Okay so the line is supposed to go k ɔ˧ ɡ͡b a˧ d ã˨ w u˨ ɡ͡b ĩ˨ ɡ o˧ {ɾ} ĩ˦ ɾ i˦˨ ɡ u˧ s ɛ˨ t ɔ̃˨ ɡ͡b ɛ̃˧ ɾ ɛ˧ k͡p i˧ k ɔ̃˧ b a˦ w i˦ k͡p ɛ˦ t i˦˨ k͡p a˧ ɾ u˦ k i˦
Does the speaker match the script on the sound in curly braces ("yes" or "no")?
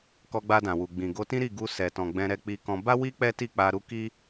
no